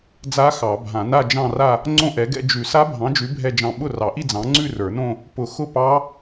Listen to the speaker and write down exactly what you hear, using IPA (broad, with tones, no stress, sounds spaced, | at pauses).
d͡z a˦˥ x ɑ˨˩˦ bʱ ã˨˩˦ n a˥˧ d͡ʒ ɑ̃˥˧ r a˥˧ | ŋ͡ǀ õ˥˧ ʔ ɛ˨˥ ɡ ɛ̰˥˧ d͡ʒ ʉ˨˩˦ s a˦˥ bʱ ɑ̃˨˥ d͡ʒ ʉ˨˥ bʱ ɛ˥˧ d͡ʒ ɑ̃˥˩ ɓ ʊ˥˩ r ɑ˨˩˦ ʔ i˥˧ d͡z ɑ̃˨˥ ŋ͡ǀ ʉ˥˧ r ə˞˨˩˦ n õ˥˧ | p ʊ˨˩˦ x ʊ˥˩ p ɑ˦˥